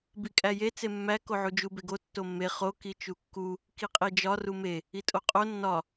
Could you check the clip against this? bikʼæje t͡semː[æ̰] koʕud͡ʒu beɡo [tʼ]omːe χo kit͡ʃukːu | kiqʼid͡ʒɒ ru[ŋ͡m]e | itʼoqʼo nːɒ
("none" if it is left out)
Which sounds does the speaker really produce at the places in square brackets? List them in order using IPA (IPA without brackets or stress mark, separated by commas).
æ, tː, m